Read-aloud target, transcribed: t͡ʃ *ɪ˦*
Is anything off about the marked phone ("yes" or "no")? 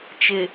yes